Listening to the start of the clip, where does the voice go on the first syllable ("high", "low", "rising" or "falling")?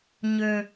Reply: low